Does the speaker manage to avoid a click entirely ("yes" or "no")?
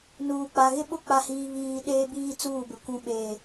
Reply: yes